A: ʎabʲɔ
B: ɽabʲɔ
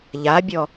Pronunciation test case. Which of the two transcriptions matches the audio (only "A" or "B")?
A